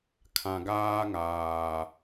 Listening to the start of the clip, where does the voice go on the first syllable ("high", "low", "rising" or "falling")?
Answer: low